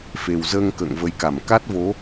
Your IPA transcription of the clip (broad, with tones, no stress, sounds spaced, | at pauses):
f e˨˩ w z əː˧ ŋ k ə̰ː˧˨ ŋ v ə˨˦ j k a˧˩ m k a˦˥ t̚ v o˨˦